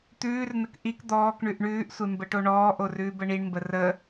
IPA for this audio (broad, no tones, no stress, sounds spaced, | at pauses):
t̪ ʉː r n ə k ʔ i k d̪ ɔː k ɳ ʉ ʔ ɳ ʉː ʔ sʷ e m b ə ʈ o ɳ ɔː ʔ o r ʉː b ə ɳ i ɳ m b ə r ə